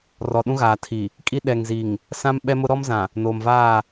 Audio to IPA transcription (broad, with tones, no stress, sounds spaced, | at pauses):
r ɔ˨ ɗ ũ˦ ɣ aː˨ tʰ i˨ | kʼ i˦ ɗ ɛ˨ ŋ z i˨ ŋ | s ã˦ m ɓ ɛ˦ m ʊ˦ ɾ ɔ˦ m z ã˨ | n oː˨ m v aː˦˨